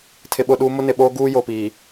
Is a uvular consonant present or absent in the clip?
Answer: absent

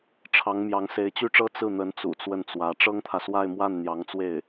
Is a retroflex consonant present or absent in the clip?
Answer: present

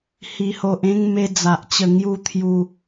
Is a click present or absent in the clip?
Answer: absent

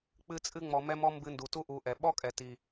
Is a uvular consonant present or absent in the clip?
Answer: absent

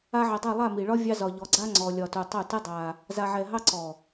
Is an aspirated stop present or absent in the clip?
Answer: absent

